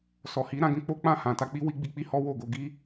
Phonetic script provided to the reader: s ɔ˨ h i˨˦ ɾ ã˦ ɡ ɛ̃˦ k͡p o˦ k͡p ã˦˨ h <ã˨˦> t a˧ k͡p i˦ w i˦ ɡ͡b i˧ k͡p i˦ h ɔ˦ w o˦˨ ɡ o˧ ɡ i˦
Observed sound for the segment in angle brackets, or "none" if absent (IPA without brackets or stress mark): ã˨